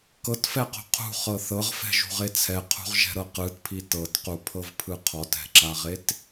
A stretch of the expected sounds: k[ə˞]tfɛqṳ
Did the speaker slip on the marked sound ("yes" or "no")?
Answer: yes